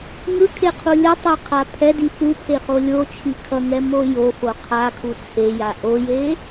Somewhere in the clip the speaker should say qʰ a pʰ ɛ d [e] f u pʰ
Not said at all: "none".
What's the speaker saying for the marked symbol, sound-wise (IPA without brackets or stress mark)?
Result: i